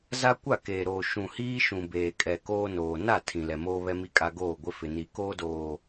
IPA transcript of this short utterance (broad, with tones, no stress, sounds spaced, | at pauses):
z a˦ kʷ a˦˨ k eː˨ ɾ oː˨ ʃ ũ˨ h iː˦ ʃ ũ˨ b eː˨ kʼ ɛ˨ k oː˦ n oː˨ n a˦˨ tʰ ĩ˨ l ɛ˨ m oː˦ β ɛ˦ m i˦ kʼ a˦ ɡ oː˦˨ ɡʷ ɪ˦ f ɪ˨ n i˨ k oː˦ d oː˨